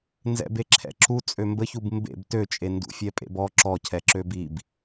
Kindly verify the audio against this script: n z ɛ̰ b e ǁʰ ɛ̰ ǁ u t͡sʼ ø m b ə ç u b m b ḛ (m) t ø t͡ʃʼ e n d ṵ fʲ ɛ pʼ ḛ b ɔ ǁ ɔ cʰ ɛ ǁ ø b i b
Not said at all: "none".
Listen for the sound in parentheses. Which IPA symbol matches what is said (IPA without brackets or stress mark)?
b